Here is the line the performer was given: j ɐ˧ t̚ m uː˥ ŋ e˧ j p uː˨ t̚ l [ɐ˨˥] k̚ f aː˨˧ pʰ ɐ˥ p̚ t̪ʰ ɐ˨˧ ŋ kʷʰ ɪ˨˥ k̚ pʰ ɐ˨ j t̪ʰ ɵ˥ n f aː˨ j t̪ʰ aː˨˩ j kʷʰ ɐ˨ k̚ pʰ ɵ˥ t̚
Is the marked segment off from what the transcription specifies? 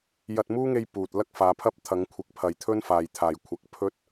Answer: yes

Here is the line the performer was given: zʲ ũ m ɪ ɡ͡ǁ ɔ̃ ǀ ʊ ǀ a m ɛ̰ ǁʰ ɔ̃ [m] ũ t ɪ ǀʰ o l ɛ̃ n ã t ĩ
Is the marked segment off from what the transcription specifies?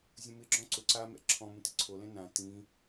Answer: no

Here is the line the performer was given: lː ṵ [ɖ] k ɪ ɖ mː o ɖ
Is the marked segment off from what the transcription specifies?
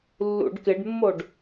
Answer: no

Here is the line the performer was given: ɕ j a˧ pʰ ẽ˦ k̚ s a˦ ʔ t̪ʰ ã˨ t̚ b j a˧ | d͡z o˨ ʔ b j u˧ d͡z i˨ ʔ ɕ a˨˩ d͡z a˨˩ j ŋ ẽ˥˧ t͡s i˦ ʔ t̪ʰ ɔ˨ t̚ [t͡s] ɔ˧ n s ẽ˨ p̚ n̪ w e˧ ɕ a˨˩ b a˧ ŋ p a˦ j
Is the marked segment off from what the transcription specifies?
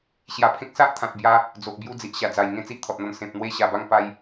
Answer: yes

